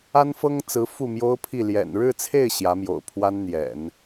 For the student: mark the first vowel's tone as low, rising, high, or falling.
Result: high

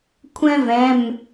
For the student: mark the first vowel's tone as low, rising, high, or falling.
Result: high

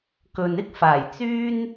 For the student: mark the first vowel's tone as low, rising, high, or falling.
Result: low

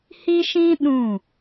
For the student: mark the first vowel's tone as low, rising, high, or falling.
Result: high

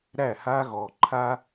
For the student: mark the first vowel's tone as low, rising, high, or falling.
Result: falling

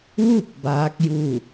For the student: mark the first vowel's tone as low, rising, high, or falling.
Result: falling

